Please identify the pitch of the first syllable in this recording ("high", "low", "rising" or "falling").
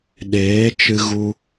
rising